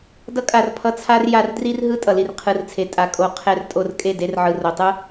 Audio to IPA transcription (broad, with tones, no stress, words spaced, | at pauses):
dʌ˧kʼa˨r pʰʌ˧t͡sʰa˦r ja˧rdri˦rɦɯ˦ tʼʌ˨li˨rqʰɯ˨rt͡sʰe˨ tʼa˨kʼo˨ qʰɛ˧r tʼo˧rkʼe˦˨ de˧rʕɯ˨ro˨tˤɯ˦